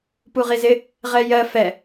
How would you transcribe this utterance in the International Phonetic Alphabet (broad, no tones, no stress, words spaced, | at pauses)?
puʁizɪ | ʁɛjɜ fɛ